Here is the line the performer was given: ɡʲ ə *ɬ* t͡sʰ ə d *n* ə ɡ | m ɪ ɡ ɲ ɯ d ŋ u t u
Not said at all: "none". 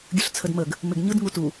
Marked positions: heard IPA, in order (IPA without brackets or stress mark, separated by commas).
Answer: ɬ, m